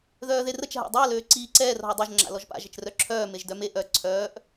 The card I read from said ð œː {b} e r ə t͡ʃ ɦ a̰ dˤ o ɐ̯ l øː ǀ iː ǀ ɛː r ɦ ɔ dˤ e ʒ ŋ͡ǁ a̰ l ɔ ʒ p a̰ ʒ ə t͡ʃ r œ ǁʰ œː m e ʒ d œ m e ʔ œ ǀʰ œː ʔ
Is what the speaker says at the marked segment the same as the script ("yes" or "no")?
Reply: no